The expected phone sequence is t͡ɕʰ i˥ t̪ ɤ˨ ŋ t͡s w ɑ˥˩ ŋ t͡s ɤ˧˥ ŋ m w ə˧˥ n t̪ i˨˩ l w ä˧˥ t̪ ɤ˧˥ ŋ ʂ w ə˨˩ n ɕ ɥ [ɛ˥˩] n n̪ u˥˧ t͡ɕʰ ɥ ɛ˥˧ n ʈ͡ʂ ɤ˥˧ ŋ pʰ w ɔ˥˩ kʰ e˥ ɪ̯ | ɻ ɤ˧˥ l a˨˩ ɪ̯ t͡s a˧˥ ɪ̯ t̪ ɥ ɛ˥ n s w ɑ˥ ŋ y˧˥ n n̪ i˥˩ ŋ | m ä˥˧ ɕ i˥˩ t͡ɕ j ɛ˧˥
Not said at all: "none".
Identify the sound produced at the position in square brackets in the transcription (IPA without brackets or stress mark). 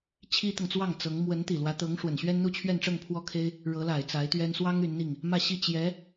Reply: ɛ˥